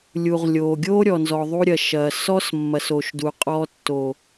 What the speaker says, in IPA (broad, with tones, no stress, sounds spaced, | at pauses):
lʲ u˨ ʁ lʲ oː˨ ɡʲ oː˦ ɾʲ ɔ˨ n z ɔ˨ ðˤ u˧ ɾʲ ɐ˨ ʃ ɐː˨ s ɔ˦ s mː ɐ˨ s o˨ ʃ d u˨ qʼ ɔ˧ tː o˨